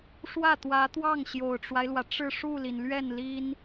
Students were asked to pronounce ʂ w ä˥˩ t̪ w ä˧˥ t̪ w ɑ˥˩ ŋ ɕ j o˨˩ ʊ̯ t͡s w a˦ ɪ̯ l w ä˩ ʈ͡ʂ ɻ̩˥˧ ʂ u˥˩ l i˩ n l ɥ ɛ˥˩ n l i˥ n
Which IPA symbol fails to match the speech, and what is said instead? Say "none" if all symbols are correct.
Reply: t͡s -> ʈ͡ʂ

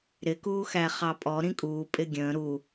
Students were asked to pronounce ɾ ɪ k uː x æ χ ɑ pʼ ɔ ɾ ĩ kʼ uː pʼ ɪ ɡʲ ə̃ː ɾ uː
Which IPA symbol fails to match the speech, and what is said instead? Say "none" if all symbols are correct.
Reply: none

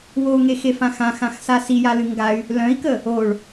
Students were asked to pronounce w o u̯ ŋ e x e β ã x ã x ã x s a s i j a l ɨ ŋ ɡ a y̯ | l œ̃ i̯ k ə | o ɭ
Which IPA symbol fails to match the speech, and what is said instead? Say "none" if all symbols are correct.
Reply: β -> f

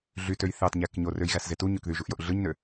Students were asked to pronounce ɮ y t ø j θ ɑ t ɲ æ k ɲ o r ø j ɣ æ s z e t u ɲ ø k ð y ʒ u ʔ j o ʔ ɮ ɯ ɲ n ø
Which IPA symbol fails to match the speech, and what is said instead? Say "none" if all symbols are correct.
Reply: none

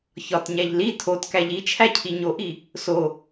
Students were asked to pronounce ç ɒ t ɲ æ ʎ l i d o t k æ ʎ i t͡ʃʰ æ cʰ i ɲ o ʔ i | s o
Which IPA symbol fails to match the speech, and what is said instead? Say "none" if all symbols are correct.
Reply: d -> tʰ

